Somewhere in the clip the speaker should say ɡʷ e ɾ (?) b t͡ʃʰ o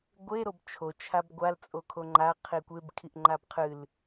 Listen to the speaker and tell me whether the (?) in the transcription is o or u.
o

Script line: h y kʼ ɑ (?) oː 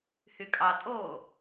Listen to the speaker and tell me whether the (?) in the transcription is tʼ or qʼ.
tʼ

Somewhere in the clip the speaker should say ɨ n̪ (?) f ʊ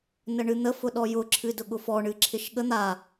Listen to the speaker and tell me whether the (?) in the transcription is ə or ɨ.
ə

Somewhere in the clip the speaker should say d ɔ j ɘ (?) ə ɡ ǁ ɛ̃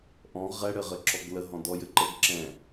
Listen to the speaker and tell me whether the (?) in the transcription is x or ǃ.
ǃ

